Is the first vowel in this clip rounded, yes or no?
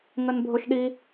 no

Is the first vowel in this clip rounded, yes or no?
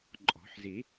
yes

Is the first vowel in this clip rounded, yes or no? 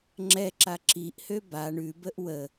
no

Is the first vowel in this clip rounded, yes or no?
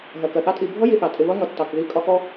no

